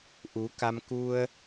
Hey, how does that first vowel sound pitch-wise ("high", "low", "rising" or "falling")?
rising